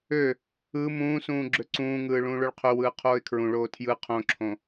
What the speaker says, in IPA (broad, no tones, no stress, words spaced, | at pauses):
ø | ɯ mũːsũː ɡ͡ǁøǀũːŋɯː ɭũːɭoɭqʰøwɯː qʰoːɪ̯kʰɹũɭoː tʰjɯ qʰõǁʰõ